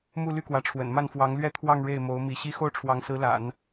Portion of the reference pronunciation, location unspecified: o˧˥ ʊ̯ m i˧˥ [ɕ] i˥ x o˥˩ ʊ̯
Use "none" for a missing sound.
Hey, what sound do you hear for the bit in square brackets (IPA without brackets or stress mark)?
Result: ɕ